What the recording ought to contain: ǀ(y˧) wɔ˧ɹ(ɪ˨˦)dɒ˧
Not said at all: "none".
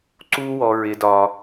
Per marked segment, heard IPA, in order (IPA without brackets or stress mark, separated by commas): u˧, ɪ˨˦